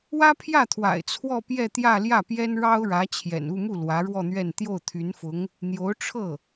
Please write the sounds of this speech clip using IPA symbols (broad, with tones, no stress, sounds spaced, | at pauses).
w ä˥ pʰ j ä˥˩ t̪ʰ w a̰˨˩ ɪ̯ t͡sʰ w ɔ˥˧ p j ɛ˥˧ t̪ j ä˥˧ l j ä˥˩ p j ɛ˥ n ɻ ɑ˥ ʊ̯ ɻ ä˧˥ t͡ɕʰ j ɛ̰˨˩ n u˥˧ m u˥˩ l w ä˧˥ ɻ w ɔ˥˧ n̪ ɥ ɛ˥˧ n t̪ j o˥˩ ʊ̯ t̪ʰ y˧˥ n f ʊ˧˥ ŋ | n̪ j o˧˥ ʊ̯ ʈ͡ʂʰ ɤ˥˩